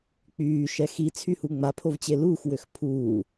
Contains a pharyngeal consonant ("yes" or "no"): no